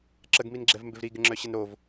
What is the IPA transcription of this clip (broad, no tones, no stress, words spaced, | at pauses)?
ǁəɡminɡ͡ǁɛvmbɪv ɾiɡɪŋ͡ǁœɕən ɾov